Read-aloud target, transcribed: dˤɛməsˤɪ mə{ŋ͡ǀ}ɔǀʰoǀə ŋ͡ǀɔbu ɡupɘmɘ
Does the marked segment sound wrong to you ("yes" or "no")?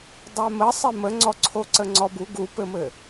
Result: no